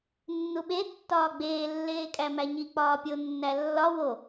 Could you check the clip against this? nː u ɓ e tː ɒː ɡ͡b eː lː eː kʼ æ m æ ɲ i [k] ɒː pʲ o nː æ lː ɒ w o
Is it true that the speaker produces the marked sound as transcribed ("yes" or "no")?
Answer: no